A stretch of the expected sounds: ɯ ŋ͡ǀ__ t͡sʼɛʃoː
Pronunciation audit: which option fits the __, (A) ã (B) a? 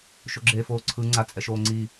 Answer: B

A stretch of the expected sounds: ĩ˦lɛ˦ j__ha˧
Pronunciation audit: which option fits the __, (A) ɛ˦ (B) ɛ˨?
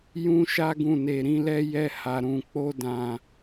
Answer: A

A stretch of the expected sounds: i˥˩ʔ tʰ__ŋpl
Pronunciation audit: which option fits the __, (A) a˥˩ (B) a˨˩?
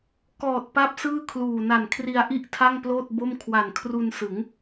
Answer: A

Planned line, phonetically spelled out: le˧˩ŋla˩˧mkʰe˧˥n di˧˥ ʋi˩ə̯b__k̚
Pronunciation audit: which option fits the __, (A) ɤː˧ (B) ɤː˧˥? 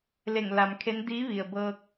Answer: A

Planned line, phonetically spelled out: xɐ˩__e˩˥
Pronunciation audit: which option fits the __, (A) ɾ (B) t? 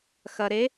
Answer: A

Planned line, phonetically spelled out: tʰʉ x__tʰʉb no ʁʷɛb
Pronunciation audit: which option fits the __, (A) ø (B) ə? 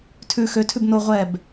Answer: A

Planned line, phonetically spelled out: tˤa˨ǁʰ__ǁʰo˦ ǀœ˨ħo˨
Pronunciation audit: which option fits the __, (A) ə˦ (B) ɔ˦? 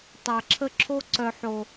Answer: A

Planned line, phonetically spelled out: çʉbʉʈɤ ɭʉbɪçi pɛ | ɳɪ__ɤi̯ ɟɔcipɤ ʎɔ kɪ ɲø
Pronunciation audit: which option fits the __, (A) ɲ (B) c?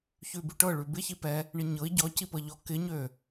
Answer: A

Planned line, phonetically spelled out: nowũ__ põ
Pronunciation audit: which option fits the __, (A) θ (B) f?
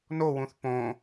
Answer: A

